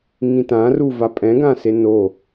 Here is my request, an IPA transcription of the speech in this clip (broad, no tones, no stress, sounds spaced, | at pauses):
ŋ ĩ t ã r u v a pʼ ɛ̃ ɡ ã s e n o